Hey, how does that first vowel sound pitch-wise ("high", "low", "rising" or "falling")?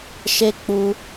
high